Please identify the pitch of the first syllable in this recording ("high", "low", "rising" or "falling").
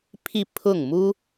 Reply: falling